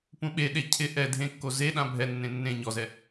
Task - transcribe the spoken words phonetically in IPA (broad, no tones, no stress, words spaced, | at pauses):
pũɓeɗe cʰɪ ʔɛ dʱẽkːo ze ɗãbʱɛnːẽ nːẽ ɲɔzɛ